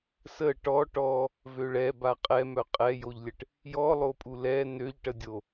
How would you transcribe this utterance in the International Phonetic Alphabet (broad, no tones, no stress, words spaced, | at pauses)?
sə ʈɔ ʈɔ | vøɭɛ baqʼɛmœ qʼɛjoʎlʲəʈ | jɔlˠopʼu lɛ nøʎʈədʲo